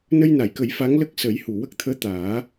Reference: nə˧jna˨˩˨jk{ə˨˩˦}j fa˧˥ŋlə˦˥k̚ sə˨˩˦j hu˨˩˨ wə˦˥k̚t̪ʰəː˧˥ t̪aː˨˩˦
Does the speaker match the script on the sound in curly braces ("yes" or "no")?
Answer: yes